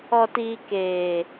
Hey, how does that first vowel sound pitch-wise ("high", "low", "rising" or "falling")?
low